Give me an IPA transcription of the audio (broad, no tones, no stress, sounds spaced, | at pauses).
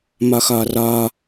m ɒ x ɒ r ɒ